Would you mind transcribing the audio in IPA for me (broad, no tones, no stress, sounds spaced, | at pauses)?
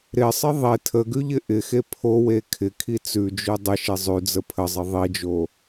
ɾ ɪ sˤ ɪ ðˤ e tʰ ə ɡ ʉ ʎ ɪ ʔ ɪ x e pʰ o w e kʰ ɪ kʰ i t͡s ʉ d͡ʒ ʉ dˤ ɪ ʃ e zˤ ʉ d͡z ə pʰ ə zˤ ɪ ðˤ i d͡ʒ o